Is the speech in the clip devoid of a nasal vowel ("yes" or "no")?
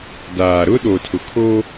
yes